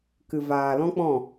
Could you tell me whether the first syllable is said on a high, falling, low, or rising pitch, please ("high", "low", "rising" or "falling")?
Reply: low